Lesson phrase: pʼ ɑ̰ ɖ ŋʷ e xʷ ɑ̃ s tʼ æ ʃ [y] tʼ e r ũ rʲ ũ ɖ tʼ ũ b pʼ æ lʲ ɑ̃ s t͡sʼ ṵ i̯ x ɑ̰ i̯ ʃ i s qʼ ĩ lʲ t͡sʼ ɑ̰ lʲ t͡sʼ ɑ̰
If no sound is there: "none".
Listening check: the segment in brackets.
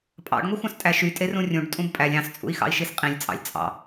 y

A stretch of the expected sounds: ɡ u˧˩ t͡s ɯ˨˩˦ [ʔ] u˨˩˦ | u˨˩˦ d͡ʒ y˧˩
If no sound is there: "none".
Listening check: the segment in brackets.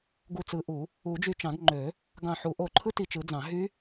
ʔ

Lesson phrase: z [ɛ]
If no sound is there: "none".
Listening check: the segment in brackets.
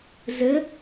ə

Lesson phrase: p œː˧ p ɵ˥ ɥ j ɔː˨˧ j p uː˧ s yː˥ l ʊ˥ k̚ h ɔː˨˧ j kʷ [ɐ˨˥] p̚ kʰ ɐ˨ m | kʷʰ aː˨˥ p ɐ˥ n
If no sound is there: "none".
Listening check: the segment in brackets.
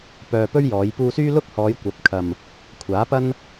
ɐ˨˥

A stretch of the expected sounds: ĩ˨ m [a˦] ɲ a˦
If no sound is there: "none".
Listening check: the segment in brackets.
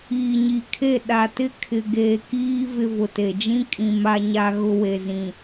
a˦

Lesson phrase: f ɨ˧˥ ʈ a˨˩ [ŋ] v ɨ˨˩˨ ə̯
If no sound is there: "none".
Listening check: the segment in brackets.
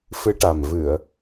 m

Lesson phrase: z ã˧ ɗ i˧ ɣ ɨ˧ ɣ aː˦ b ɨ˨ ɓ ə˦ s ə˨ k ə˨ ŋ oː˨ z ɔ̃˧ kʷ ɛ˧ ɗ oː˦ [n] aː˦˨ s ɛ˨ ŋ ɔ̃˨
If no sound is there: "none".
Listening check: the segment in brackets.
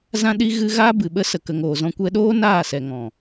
n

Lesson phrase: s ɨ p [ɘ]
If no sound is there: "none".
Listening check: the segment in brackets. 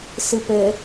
ɘ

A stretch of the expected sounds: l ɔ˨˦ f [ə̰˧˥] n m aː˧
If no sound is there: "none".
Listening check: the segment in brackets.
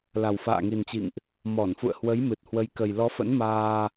ə̰˧˥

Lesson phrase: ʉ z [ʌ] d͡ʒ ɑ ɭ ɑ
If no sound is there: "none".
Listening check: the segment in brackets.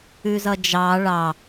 ʌ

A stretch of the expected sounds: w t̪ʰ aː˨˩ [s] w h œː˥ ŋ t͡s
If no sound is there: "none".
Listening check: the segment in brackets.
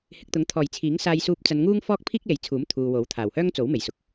none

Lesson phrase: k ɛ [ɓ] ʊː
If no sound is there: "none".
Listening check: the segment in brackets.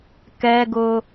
ɡ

